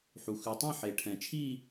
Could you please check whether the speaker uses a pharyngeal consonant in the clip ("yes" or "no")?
yes